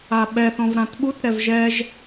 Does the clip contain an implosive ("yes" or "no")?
yes